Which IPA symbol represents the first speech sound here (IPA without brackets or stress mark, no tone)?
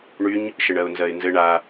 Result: ɳ